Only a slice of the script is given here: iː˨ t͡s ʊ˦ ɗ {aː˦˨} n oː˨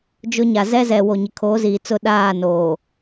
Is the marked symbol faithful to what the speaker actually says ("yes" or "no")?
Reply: yes